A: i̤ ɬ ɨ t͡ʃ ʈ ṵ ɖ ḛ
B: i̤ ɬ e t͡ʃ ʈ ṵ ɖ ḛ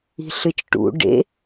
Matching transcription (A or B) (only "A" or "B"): A